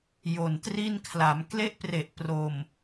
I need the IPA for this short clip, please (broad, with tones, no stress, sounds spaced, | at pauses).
j o˨˩ n t r i˥˩ n kʰ l a˩˦ m k l e˥˩ ʔ p r e˨˩ ʔ p r o˨˩ m